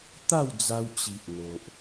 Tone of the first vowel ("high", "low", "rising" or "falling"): falling